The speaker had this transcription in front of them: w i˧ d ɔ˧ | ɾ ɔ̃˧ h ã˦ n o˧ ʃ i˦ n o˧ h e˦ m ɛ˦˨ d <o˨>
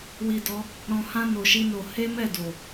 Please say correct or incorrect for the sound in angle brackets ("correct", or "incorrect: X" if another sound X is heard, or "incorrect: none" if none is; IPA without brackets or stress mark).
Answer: correct